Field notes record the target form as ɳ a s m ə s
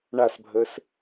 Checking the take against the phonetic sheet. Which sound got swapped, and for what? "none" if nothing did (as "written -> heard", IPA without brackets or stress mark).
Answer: m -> bʱ